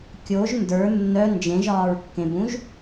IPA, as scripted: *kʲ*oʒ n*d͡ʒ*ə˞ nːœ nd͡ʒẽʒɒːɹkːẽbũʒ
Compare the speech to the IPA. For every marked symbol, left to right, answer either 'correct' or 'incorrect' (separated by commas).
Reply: correct, incorrect